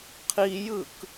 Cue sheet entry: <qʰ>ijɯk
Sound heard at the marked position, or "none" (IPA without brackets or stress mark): qʰ